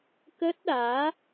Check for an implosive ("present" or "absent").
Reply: present